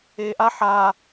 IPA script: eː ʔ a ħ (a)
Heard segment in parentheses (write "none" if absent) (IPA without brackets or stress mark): aː